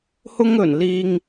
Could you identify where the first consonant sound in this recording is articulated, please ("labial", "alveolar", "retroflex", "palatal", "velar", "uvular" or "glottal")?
glottal